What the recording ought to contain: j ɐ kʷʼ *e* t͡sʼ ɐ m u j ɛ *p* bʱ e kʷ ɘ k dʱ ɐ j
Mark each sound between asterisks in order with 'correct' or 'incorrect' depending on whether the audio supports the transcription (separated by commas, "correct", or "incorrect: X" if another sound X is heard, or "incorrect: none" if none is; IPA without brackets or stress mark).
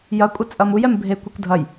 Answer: incorrect: ɘ, incorrect: m